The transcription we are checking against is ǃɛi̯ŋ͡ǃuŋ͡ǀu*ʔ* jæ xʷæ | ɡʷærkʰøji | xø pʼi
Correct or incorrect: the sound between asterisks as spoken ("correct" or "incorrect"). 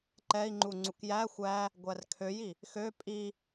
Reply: incorrect